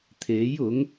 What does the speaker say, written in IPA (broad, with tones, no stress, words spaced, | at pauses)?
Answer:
t̪ʰe˨˥j ʊ˨˥ŋ